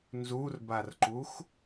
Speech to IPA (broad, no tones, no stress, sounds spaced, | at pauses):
n z u r b a r ǃ u x